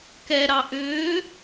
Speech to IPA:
k ɛ ɾ ɑ ʔ ʏː

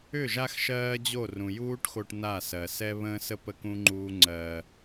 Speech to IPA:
ʏ˦˨ ʒ a˦ x ʃ ɜː˦ d͡ʑ o˦˨ r ũ˨ j uː˦ ʈ x o˧ ʈ n a˦˨ s ɜ˨ s ɛ˦ β ə̃ː˦ s ə˦ p ə˦ k ũ˦ ŋ͡ǃ uː˦ ŋ͡ǀ ɜː˧

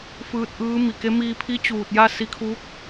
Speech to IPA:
f ɯː˧ t̚ ʔ ɯː˧˥ m i˩ k e˧˥ m iː˧ pʰ i˧˥ t͡ɕ uː˧˩ t̚ j a˥˨ s i˧ kʰ uː˧˥ k̚

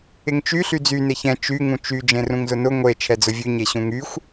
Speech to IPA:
ɪ ŋ t͡ʃ y ɬ y d͡z y n e ç ɛ̃ t͡ʃ y ŋ ũ t͡ʃ y d͡ʒ ẽ r ũ ŋ z ʊ n ʊ ŋʷ e t͡ʃʰ ɛ d͡z ʊ vʲ ʉ ɲ e ɕ ũ ŋ y xʷ

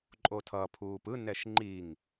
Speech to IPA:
ǃʼ o tʰ ʌ pʰ uː p ɯ n ɛ ʃ ŋ͡ǃ i ŋ

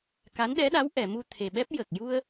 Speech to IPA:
k a˧˥ n ɗ ɛ˧˥ ɗ a˧˥ w ʔ ɛ˨˩˨ m u˧ t̪ʰ e˨˩ ɓ ɛ˦˥ p̚ j ə˨˩ k̚ j u˧ ə̯

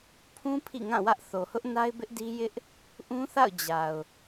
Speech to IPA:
pʰ ũ˦ pʰ ḭ˦˨ ŋ ã˦˨ w ä˦ ʔ θ o˨ h ʊ˦ ʔ n a˦ ɪ̯ b ɪ˦ ʔ d i˦ j ɪ˦ ʔ | ʔ ũ˦ θ a̰˦˨ ʊ̯ d͡ʑ a˨ ʊ̯

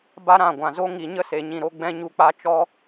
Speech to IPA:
b a˦ ɾ ã˦˨ ɡʷ ã˨ z o˦ ŋ i˨ ɲ ə˦ s e˨ ɲ ĩ˨ ɾ o˧ ɡ͡b ɛ̃˦ ɲ u˧ k͡p a˦ t͡ʃ ɔ˦

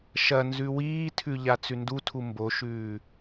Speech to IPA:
ʃ ɐ n z ʉ w iː tʰ ʉ ʎ a t͡s ʉ n d u tʰ u m b o ʃ ʉː

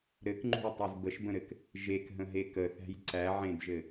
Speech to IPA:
ɾ ɘ k ŋ͡ǃ ṳ j tˤ e z b ə ʃ b ə̃ ɾ ɘ k | ʒ e k ɦ ə̃ ɦ e k ə θ æ̤ j ǀ æ ʕ ẽ d ʒ ɘ

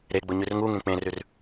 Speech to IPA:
ɾ e ɡ͡b ʊ ɲ ʉ r ŋ u ŋ ẽ k͡p ẽ r ʉ r

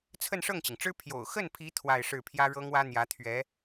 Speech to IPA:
t͡sʰ ə˥˧ n ʂ ɤ˥˩ ŋ t͡ɕ i˩ ŋ ʈ͡ʂ ɻ̩˥ pʰ j o̰˨˩ ʊ̯ x ə˥˩ n pʰ i˧˥ t̪ʰ w a˥˧ ɪ̯ ʂ ɻ̩˥˩ pʰ j ä˥ ɻ ɤ˥ ŋ w ä˥ n̪ j ä˧˥ t̪ʰ ɥ ɛ˧˥

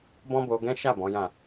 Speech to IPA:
b ɔ̃˦ b o˧ ɡ ɛ̃˦ ʃ a˦˨ b ɔ̃˨˦ j ã˦˨

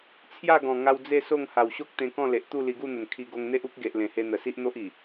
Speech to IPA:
t͡sʰ j a˥˧ ɡ ɔ̃˨˩ ŋ a˧ w d͡z e˥˧ s o˥˧ ŋ h a˨˩ w ɕ o˦ k̚ t̪ ẽ˧ k ɔ̃˥˧ l e˨ ʔ t̪ u˥˧ l i˧ ɡ u˥˧ n̪ ə˨˩ n kʰ i˧ ɡ o˧ ŋ n̪ e˦ ʔ u˦ k̚ ɡ e˨ ʔ l ẽ˨˩ h e˧ n̪ ə˨˩ s i˦ ʔ n̪ o˦ ʔ i˨˩

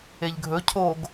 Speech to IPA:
e ʎ ɡʱ ɵ cʰ o ɡ

